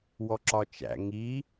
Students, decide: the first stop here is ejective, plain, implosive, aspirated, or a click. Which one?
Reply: click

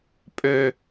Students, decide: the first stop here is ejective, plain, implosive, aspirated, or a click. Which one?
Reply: ejective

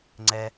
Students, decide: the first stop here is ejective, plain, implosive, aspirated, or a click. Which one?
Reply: click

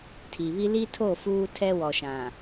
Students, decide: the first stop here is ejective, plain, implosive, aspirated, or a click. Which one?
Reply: aspirated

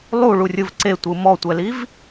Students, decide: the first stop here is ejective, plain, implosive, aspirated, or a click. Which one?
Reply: click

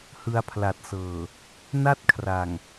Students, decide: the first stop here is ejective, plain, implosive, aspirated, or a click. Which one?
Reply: aspirated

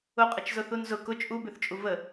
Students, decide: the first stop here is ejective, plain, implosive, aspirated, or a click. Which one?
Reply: ejective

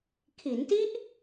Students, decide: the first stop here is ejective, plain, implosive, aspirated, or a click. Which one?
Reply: aspirated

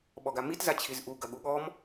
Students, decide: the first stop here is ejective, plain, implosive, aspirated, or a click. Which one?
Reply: implosive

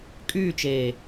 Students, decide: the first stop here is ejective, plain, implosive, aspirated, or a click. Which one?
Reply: ejective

